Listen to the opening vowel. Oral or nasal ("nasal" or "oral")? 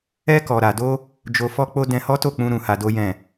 oral